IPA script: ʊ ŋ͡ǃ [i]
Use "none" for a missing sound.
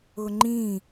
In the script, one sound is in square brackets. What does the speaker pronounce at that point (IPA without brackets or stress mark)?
ĩ